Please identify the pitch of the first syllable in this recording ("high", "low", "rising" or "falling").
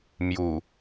low